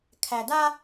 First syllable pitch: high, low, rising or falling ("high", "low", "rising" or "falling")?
low